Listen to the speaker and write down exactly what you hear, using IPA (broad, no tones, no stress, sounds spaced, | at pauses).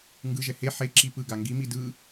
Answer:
ŋ ɡ ɯ ʒ ɛ h e ħ e ǁ i p ɯ ɡ a ŋ ɡ i m i d ɯ